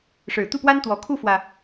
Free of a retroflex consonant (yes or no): no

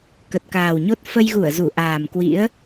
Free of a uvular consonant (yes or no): yes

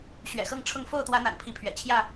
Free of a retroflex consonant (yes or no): no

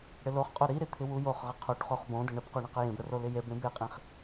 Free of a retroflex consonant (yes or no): no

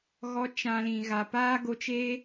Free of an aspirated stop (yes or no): yes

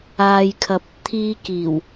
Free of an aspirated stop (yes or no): no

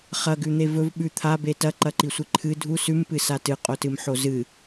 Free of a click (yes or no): no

